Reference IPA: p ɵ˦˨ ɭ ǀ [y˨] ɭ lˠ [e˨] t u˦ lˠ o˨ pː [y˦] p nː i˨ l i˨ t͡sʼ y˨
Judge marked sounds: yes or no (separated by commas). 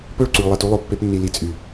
yes, yes, no